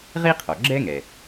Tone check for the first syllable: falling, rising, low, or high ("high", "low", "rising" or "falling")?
high